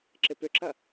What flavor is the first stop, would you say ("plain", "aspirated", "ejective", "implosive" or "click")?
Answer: click